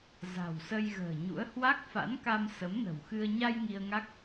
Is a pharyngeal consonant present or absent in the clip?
absent